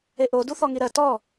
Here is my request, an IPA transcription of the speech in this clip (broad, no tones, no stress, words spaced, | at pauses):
eʔo duθɔŋiɾɜ tɔ